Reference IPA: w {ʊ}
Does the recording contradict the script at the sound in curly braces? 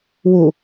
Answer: yes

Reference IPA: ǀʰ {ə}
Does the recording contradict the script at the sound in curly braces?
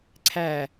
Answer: yes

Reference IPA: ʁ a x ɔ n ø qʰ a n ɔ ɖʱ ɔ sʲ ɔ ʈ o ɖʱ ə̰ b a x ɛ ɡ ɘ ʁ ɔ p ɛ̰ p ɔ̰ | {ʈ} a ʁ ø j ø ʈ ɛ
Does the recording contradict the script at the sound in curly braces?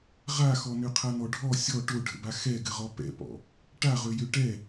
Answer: no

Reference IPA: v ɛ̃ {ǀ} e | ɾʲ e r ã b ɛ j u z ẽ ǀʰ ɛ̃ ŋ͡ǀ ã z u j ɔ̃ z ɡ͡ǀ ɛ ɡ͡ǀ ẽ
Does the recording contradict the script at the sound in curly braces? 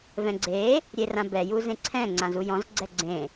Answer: yes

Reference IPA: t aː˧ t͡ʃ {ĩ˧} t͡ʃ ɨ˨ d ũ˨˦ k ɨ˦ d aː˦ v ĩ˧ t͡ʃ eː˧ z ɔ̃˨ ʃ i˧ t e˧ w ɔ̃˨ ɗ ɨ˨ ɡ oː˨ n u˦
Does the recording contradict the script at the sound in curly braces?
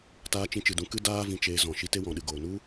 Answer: no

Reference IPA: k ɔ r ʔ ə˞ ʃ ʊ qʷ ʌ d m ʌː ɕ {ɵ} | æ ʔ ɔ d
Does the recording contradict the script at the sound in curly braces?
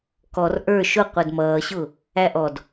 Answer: yes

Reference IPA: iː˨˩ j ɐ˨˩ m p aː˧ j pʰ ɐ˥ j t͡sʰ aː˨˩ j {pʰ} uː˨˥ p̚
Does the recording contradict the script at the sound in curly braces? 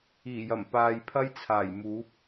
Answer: yes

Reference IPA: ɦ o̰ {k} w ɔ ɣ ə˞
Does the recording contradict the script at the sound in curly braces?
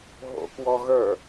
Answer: no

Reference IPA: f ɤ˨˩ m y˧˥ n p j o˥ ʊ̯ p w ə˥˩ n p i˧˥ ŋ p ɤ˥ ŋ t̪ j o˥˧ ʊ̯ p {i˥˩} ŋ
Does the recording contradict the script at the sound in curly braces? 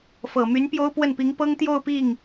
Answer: no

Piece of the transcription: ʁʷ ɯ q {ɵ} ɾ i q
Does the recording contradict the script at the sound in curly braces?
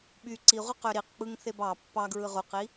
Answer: yes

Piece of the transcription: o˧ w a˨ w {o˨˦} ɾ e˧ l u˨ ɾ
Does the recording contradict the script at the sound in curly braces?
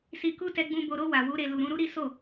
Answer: yes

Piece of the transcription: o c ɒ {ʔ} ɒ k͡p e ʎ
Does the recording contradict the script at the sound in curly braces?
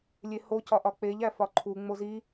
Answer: no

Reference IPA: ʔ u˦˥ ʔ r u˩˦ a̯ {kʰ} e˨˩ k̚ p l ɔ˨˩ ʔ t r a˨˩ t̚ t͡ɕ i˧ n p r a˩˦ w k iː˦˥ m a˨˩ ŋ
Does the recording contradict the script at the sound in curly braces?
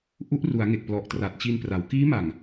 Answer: yes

